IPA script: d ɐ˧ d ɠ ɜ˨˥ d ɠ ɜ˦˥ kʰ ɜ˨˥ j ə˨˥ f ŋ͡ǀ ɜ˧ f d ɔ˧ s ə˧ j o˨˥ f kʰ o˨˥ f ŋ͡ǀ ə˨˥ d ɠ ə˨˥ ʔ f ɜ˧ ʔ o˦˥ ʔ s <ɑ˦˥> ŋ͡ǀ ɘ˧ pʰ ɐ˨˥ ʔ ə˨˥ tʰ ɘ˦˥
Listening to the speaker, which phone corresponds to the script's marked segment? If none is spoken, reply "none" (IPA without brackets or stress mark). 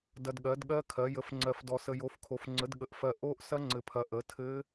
ɐ˦˥